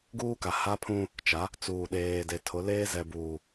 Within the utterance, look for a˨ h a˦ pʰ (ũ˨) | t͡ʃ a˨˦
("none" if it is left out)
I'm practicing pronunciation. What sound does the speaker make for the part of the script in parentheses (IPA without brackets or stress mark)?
ũ˦